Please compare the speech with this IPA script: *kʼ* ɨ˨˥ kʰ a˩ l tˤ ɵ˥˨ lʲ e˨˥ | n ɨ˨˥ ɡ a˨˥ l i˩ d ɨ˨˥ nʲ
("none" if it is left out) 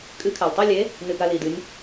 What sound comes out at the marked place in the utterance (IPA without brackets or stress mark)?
kʼ